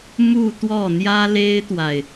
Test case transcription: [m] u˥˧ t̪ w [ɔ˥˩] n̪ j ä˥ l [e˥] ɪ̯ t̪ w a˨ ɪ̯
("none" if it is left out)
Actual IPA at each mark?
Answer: m, ɔ˥˩, e˥

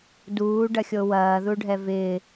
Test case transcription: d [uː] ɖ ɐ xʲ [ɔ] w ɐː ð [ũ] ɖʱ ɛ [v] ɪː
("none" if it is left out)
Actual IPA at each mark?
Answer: uː, o, u, v

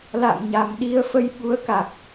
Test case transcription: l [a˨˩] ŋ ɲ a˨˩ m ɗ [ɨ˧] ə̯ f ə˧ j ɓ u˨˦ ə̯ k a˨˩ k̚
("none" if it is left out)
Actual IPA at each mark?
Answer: a̰˧˨, i˧

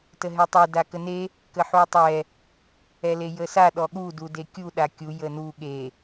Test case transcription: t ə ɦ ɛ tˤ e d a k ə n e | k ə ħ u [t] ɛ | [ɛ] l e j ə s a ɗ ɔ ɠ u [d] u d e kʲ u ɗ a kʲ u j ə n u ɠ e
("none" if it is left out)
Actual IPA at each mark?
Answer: tˤ, ɛ, d

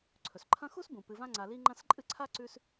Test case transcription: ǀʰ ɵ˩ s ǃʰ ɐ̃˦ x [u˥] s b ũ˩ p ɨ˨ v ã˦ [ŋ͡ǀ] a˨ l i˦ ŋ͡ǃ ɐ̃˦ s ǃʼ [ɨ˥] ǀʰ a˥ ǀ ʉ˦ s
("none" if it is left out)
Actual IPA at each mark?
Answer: u˥, ŋ͡ǀ, ɨ˥

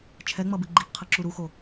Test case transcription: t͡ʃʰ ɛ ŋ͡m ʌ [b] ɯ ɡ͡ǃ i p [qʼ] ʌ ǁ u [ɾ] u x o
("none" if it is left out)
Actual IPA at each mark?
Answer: b, qʰ, ɾ

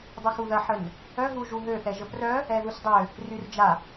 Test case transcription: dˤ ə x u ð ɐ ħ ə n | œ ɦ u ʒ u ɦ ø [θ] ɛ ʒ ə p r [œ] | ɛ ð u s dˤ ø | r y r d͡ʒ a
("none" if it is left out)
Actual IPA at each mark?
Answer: θ, œ

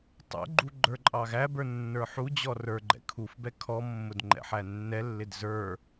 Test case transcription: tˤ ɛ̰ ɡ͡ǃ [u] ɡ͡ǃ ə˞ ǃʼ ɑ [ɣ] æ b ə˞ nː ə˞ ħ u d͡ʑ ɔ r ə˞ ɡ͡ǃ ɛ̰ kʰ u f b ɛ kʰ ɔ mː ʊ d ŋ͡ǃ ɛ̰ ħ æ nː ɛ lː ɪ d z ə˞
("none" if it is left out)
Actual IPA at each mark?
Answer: u, ɣ

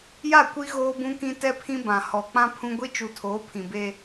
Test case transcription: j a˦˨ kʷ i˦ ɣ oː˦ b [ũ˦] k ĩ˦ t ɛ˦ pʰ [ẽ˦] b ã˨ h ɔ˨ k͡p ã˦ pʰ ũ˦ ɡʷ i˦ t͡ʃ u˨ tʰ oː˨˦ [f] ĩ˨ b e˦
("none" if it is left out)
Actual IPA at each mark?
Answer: ũ˦, ĩ˦, pʰ

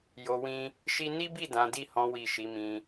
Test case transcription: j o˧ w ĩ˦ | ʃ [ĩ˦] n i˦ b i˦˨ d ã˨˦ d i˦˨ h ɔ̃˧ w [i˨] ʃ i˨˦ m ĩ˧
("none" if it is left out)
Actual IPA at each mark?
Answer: i˦, i˨

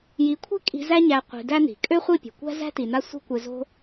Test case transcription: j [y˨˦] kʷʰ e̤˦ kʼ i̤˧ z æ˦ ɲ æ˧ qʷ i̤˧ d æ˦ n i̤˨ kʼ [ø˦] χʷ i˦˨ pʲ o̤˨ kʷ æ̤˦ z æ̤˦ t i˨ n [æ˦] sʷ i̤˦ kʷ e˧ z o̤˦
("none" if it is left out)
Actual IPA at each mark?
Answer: i˨˦, ø˦, a˦

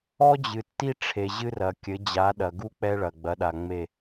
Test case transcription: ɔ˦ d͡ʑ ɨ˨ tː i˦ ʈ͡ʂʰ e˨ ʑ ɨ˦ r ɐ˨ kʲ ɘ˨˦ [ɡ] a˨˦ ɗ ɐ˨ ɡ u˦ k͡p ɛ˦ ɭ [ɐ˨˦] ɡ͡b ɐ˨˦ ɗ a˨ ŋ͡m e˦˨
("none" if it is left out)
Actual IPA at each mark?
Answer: d͡ʑ, ɐ˨

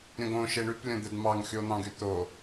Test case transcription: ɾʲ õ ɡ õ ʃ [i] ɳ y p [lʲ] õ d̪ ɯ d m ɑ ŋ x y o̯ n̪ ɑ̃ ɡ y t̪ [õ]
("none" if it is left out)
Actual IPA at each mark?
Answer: e, lʲ, o

